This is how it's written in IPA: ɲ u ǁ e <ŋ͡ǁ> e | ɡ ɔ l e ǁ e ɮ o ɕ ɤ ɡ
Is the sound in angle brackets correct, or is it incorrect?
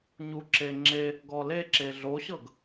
correct